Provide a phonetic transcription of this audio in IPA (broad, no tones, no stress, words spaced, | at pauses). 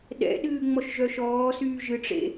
ɗɛ̰ɗɨː ŋ͡mɔʃʒœʃɔːsyː ʒɨʈ͡ʂḛ